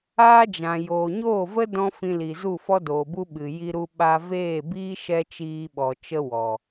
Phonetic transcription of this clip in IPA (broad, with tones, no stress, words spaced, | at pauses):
aː˦d͡ʒã˨ joː˨ɲoː˦˨və˦ dɔ̃˦ fĩ˧li˨zu˦˨ fɔ˦doː˨bu˦ ɓɨ˨ ji˧ɾu˧ɓa˧ veː˦˨biː˦ ʃɛ˦t͡ʃiː˧ɓɔ˨ t͡ʃə˦wɔ˨